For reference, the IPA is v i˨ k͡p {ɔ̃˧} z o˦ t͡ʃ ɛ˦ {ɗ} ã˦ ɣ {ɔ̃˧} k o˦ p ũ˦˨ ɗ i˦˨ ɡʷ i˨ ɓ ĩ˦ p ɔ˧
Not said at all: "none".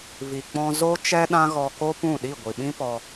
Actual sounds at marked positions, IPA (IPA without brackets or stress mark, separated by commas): ɔ̃˧, ɗ, ɔ˧